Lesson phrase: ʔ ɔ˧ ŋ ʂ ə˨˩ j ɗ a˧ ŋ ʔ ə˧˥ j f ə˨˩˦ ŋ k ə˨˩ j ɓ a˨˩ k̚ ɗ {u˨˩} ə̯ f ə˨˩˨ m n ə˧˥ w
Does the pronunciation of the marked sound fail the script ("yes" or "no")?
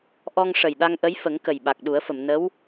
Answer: yes